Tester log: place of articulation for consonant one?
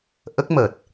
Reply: glottal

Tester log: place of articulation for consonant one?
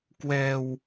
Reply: velar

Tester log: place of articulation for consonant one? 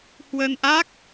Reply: glottal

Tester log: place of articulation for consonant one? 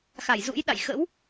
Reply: velar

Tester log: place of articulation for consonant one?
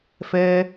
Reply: labial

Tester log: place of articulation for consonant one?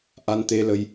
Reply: glottal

